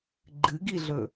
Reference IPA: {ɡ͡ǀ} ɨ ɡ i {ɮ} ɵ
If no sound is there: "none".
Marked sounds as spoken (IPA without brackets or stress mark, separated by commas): ɡ͡ǃ, ɮ